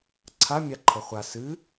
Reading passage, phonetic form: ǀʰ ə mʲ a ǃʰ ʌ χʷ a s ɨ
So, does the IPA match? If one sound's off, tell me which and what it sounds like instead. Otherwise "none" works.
ə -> a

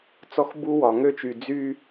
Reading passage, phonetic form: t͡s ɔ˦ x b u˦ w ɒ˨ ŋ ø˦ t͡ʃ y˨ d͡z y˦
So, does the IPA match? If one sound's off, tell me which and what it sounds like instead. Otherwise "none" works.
none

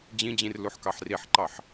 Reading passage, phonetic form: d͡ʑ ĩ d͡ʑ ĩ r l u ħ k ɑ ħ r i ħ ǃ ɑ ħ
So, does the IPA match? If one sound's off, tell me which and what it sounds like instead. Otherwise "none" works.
none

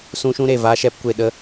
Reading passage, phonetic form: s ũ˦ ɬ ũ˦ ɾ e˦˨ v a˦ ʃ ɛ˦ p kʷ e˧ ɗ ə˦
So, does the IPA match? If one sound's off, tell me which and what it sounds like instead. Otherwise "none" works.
ɬ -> ʃ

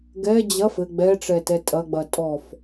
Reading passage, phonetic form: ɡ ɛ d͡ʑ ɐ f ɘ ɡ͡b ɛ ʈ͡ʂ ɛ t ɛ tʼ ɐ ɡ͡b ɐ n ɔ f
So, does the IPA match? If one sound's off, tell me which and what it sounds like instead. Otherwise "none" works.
n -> tʼ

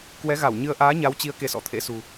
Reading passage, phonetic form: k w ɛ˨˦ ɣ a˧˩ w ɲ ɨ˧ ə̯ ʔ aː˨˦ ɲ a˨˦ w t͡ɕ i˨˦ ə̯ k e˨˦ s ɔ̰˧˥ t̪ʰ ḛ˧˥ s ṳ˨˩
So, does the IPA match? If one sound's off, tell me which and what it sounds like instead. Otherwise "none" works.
none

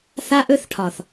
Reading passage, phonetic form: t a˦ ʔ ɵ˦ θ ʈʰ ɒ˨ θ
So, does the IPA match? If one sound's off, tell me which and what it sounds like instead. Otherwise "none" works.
t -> θ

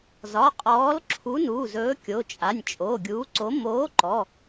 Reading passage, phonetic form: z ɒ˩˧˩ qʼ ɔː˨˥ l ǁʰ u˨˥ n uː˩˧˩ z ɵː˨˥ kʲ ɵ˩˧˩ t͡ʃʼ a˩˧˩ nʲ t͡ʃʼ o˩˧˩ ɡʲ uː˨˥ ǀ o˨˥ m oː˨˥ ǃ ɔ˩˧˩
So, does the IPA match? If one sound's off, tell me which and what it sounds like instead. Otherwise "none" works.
ɵ˩˧˩ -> o˩˧˩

